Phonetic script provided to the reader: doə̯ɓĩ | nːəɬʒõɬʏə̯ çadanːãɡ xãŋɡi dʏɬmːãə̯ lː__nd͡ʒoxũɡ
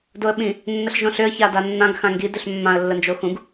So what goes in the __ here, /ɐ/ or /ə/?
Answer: ə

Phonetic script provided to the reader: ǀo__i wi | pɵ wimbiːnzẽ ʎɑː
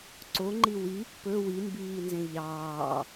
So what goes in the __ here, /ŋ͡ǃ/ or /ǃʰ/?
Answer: ŋ͡ǃ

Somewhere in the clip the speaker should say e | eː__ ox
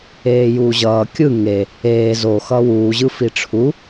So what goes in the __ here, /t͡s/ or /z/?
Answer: z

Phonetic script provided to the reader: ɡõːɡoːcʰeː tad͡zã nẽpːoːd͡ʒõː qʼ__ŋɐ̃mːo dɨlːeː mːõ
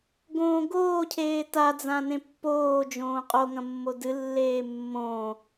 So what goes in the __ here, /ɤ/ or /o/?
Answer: o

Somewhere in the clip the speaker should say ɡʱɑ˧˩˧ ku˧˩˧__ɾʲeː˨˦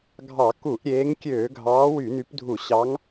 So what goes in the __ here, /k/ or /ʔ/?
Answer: ʔ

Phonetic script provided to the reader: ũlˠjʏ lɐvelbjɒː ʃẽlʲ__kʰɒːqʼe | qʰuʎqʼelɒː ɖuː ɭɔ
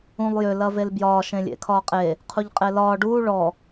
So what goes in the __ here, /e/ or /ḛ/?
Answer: ḛ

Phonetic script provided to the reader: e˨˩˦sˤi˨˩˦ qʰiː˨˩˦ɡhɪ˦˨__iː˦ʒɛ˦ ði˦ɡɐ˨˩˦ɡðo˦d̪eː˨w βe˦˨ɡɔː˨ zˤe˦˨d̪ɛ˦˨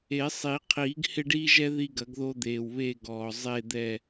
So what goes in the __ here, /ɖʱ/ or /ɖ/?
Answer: ɖ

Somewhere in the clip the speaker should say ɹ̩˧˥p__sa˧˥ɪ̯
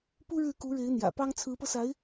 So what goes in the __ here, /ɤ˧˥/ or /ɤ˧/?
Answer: ɤ˧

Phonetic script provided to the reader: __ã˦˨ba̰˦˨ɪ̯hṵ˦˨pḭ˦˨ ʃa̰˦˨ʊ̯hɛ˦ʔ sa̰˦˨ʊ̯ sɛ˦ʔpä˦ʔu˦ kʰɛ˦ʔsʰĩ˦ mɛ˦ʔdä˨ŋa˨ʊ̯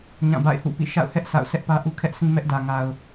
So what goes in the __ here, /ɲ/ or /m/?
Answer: ɲ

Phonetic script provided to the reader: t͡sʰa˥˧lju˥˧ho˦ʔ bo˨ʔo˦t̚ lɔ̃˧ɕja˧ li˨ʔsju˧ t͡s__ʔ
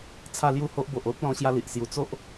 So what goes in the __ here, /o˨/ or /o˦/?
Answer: o˦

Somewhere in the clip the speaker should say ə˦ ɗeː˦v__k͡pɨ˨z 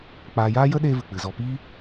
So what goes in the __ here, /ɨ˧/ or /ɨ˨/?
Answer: ɨ˨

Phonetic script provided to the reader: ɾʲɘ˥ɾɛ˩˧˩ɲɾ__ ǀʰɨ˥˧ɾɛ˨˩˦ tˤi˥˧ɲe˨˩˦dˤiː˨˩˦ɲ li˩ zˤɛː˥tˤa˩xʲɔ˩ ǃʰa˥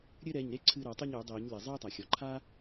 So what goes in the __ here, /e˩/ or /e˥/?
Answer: e˥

